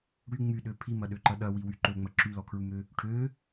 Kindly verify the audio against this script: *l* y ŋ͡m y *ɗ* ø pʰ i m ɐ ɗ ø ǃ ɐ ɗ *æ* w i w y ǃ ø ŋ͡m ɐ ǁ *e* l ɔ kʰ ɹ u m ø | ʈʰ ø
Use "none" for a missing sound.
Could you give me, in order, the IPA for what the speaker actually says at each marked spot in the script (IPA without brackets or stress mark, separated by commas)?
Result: ɽ, ɗ, ɐ, y